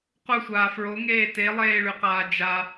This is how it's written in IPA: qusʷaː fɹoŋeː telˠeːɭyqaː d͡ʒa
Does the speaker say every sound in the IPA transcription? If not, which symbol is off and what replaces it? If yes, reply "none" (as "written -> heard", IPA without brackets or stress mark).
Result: none